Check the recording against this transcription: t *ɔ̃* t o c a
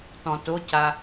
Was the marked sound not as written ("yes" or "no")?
no